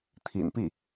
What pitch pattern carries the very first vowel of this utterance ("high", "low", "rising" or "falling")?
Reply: low